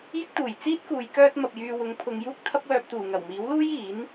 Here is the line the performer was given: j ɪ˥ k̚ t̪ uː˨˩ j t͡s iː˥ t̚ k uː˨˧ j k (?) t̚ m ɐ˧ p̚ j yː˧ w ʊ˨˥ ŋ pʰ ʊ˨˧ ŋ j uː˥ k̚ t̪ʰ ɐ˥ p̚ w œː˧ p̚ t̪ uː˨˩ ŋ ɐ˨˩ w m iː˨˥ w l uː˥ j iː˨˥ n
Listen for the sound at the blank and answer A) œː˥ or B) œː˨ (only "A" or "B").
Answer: A